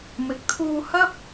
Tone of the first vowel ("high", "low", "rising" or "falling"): low